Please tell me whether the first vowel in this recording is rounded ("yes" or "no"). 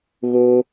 yes